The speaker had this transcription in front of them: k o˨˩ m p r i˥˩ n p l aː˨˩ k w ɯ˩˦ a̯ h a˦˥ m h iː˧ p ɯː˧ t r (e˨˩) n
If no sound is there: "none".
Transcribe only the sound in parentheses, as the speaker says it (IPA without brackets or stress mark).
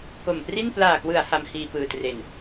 e˨˩